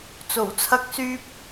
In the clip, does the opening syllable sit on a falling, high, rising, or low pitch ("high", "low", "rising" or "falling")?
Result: low